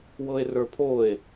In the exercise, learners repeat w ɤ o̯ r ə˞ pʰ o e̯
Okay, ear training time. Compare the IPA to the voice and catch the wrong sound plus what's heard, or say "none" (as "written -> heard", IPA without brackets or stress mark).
o̯ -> e̯